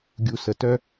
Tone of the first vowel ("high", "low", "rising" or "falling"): low